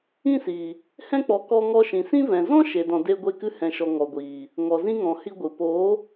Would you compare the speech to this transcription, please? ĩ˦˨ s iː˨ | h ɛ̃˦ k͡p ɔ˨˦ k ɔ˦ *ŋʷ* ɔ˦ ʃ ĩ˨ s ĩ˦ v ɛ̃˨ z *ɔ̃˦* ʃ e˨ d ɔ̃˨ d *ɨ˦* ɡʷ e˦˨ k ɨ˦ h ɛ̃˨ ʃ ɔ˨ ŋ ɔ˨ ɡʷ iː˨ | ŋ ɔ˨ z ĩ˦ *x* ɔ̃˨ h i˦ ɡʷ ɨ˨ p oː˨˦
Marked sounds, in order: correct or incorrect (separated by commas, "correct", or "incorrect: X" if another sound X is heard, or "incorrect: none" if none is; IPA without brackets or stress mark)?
incorrect: ŋ, correct, incorrect: e˦, incorrect: ŋ